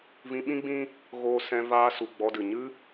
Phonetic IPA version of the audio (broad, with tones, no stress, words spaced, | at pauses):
vĩ˧ɓĩ˦ɡ͡bĩ˦ | ɣoː˧sɛ̃˧ vaː˧su˨ ɡ͡bɔ˧dɨ˨ ɲɨ˦